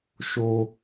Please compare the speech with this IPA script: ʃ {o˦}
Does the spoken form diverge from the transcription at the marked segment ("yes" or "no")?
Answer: no